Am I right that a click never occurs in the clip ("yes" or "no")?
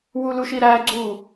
no